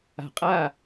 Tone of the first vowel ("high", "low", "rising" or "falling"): low